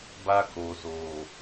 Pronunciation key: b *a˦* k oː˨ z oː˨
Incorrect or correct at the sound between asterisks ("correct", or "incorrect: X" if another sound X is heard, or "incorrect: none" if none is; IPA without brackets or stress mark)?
correct